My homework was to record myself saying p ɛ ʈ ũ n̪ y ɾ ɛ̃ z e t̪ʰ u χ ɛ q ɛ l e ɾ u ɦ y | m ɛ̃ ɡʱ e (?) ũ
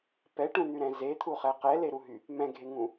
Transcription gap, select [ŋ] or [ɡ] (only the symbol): ŋ